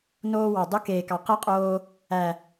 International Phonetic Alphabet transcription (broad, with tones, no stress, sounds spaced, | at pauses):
n oː˧ w ɑ˨ dˤ ɵ˦ k eː˨ k ɑ˨ q ɛ˦ qʼ oː˧ | æ˨